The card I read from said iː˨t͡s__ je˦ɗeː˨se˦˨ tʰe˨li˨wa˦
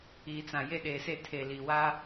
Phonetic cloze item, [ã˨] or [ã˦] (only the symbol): ã˨